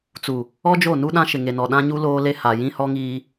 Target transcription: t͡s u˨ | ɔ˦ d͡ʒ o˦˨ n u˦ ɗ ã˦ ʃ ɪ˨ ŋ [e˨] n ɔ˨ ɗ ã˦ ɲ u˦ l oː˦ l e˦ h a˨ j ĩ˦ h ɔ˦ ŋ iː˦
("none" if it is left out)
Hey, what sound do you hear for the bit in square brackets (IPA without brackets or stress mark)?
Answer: e˨